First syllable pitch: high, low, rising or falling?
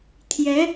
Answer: rising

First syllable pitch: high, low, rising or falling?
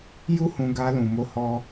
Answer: high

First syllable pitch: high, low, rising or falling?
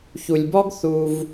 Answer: low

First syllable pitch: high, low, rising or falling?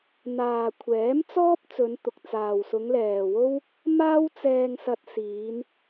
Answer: low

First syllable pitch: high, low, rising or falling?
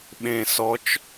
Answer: low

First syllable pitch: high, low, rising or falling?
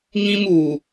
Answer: high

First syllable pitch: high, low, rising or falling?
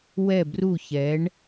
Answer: falling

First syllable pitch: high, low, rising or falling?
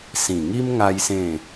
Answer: low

